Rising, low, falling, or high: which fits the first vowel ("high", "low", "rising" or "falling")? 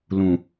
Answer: low